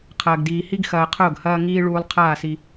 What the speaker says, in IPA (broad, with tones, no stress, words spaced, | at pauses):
qʰɐː˨ɡdiː˨hi˦ɡ xɐː˨ qʰʊː˦˨ɡhɐː˦ŋiː˦ ɭuː˨lˠ qʰaː˦˨si˦